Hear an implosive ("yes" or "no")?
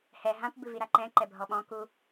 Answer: yes